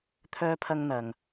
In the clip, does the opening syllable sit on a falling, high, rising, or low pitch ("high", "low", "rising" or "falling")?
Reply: high